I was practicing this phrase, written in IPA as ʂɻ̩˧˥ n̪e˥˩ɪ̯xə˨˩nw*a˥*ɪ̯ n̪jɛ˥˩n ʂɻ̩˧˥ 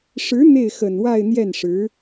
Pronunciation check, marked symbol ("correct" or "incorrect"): incorrect